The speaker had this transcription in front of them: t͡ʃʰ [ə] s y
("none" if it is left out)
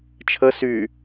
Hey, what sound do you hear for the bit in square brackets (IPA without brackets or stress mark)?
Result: ə